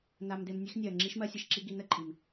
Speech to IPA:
n a˧ m d e˧ m nʲ e˦ x nʲ ɜ˨ ŋ͡ǁ i˦ ʃ m ɜ˦ sʲ ə˧ ʃ ǁ i˦ ɡ i˧ n ə˦ ǃʼ i˨ m

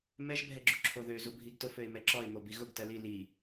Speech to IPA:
m ɛ ʒ bʱ ɛ ɡ͡ǁ u ǁʰ o ð ø z u bʱ i ɡ t ʊ f ø ɪ̯ m ɛ ǁ ɔ ɪ̯ m o b i ɣ ʊ ɡ t ɜ l i l i

